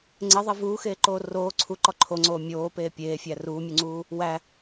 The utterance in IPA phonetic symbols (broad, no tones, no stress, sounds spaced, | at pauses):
ŋ͡ǀ e ðˤ e v uː x eː ǃ oː r oː ǀʰ u ǃ ɒ ǃʰ o ŋ͡ǀ oː mʲ oː p eː pʲ eː fʲ æ r uː mʲ u ŋ͡ǀ uː | w æ